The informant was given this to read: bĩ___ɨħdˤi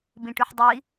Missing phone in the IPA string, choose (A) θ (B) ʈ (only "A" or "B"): B